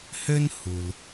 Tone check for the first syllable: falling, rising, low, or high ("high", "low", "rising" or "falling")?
high